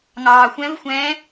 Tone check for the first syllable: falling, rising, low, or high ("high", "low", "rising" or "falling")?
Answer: low